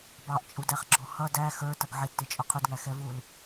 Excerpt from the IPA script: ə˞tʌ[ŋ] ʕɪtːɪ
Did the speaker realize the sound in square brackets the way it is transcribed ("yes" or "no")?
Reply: no